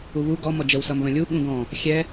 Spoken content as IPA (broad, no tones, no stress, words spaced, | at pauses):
uβu ɡɔ mɔd͡ʒəw sʌmβə̃lʲu ɠũɡɔ̃ | xʲɛ